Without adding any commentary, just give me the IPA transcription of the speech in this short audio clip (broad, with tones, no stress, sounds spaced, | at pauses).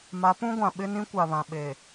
m a˨˦ p ũ˦ ɡʷ ã˨ ɓ ɪ˦ n ĩ˦ kʷ a˨ β ã˨ ɓ e˨